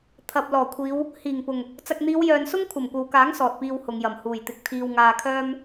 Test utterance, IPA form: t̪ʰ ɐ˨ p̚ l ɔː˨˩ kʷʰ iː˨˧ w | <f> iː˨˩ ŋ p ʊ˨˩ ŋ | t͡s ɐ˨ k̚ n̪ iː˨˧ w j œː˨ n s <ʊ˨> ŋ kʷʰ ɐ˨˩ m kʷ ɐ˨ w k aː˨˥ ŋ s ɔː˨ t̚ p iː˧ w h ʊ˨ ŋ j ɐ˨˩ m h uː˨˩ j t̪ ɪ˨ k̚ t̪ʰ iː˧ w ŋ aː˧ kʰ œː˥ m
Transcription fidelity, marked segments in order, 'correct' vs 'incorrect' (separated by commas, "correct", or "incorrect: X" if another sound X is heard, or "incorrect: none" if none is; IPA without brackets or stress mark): incorrect: h, incorrect: ʊ˥